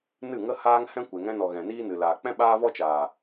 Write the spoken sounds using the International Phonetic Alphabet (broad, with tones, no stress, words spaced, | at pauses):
nɨ˦˨ŋə˦haː˦ŋhɛ̃˦ kʷe˨ŋɛ̃˧nɔ˨ ɣɛ̃˨niː˦nɨ˨ laː˨k͡pɛ̃˦ ɓaː˦vɔ˦ t͡ʃaː˨